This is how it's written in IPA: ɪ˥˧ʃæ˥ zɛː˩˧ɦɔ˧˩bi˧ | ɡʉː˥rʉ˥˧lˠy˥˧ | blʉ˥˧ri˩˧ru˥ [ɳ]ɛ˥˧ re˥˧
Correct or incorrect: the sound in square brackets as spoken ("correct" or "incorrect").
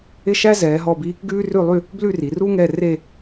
incorrect